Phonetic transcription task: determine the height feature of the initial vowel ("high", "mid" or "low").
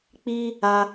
high